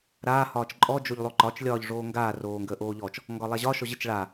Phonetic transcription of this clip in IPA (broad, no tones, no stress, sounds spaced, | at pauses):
ɾ aː h ɒː t͡ʃ ǃʼ ɔ d͡ʒ o ʎ lˠ o ǃ ɒ t͡ʃ lʲ ɒː ʎ ʐ oː ŋ ɡ aː r oː ŋ ɡ əː ʔ oː ʎ ɔ t͡ʃ | ŋ ɡ ɒ lˠ a ʑ ɒ ʃ ɔ ʑ ə t͡ʃ ɭ a